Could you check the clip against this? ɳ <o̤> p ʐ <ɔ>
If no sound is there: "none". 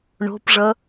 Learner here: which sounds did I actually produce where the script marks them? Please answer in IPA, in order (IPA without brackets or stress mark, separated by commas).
o̤, ʌ